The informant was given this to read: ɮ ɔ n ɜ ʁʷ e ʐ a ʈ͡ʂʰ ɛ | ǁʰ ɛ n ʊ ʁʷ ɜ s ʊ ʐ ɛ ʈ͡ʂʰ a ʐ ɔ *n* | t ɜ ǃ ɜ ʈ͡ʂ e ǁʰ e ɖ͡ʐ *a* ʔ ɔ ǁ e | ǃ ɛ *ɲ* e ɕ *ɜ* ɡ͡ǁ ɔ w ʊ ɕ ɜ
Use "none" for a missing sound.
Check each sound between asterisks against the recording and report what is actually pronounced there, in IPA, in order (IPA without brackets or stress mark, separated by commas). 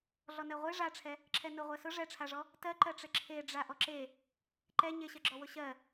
none, a, ɲ, ɜ